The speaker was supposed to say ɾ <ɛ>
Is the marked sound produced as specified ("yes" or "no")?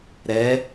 yes